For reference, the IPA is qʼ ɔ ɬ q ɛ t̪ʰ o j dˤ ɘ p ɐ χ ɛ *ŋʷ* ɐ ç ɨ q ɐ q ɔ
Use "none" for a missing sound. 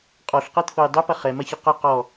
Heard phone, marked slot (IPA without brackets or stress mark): m